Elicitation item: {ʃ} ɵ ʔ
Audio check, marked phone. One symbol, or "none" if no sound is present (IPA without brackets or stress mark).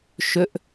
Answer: ʃ